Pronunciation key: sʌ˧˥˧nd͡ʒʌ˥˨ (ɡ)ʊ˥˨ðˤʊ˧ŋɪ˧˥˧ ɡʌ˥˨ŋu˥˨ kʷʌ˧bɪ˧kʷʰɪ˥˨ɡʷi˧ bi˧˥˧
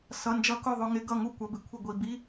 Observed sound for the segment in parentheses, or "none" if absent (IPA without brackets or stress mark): k